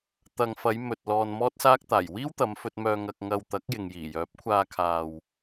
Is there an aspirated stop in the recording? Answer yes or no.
yes